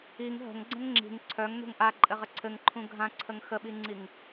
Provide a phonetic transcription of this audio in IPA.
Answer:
i ŋ ɦ ə̤ ŋ ɡ͡ǀ ə̃ ŋ ŋ͡ǁ i̤ ŋ ǀʰ œ ŋ n ṳ ŋ ʔ a ǃʼ ɘ ʁ ə ǀʰ ɘ ŋ ǃʰ ũ ɡʱ ã ǀʰ ə ŋ x ə ɓ i ŋ͡ǀ i ŋ

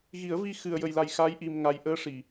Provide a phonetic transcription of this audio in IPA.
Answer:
ɣ i˨˩˦ ə̯ v i˧ x ɨ˨˩ ə̯ j ə˨˩ j l a˨˩ j x a˧˥ j ʔ i˨˩ m ŋ a˨˩ j ʔ əː˧ ʂ i˨˩˨

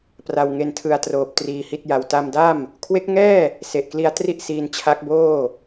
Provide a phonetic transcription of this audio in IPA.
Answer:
p r a˧ w ŋ e˧ n tʰ ɯ˧ a̯ t r oː˨˩ p̚ t r iː˧ h i˥˩ t̚ j a˧ w t a˧ m d a˥˩ m | kʰ w e˦˥ k̚ ŋ ɛː˥˩ | s e˨˩ ʔ k l i˧ a̯ t r i˥˩ ʔ s iː˧ n t͡ɕʰ a˦˥ k̚ b oː˥˩

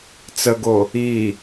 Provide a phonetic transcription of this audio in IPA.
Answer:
t͡s ə ɡ o | i

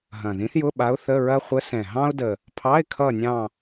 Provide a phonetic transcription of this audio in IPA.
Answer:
ɦ ɐ̃˨˩ ð ĩ˧˥ θ j ʊ˧˥˧ ɓ a˧˥ ʊ̯ θ ə˧˥˧ ɹ ɐ˥ χʷ ə˧˥ s ɛ̃˨˩ ɦ ɑ̃˥ ʊ̯ d ə˨˩ | pʰ ɑ˧˥˧ ɪ̯ kʰ ʌ˦˨ nʲ ɑ̃˦˨

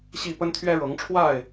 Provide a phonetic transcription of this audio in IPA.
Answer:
ɕ i˥˨ p ə˦ n t̪ʰ ɥ ɛ˦ ɻ ɤ˨˦ ŋ ʈ͡ʂʰ w a˥˨ ɪ̯

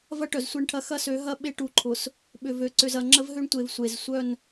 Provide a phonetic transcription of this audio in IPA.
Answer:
v ɐ˦ ʈ œ˨ z sʷ e˦˨ ɳ ʈʰ ɐ˦ x ɐ˦ s ø˨˦ ɦ ɐ˦ ɓ e˦ ʈ u˨ ǃʰ ʊ˨ s | ɓ ʏ˨ v ø˨ ǀ ʏ˨ z ɐ˨ ŋ͡ǁ ə˦ v ɦ ø˦ ɳ tʷ e˨ v sʷ e˨ z sʷ œ˦˨ n

